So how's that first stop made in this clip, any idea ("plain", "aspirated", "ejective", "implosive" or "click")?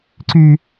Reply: click